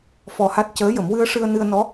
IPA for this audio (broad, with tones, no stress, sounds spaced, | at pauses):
f ɔ˧ h a˦˥ t̚ c əː˧˥ j ə˨˩˦ m w ɨ˧ ə̯ ʂ ɨ˧ ə̯ n ɨ˧ ə̯ n ɔ˧˥